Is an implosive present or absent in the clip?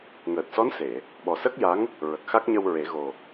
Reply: present